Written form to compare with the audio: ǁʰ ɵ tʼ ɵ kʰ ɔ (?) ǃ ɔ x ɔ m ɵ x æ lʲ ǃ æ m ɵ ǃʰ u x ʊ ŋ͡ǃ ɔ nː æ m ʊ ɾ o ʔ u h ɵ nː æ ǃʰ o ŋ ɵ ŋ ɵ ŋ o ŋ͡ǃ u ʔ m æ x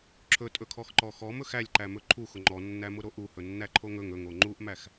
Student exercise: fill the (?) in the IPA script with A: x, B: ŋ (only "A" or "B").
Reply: A